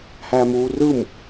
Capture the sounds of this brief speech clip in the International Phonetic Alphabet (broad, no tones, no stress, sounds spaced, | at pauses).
h æ m uː r ɯ m